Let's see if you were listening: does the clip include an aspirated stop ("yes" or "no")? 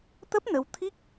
yes